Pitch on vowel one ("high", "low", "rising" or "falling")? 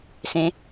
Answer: rising